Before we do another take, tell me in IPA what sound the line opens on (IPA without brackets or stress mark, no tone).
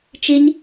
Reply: t͡ʃ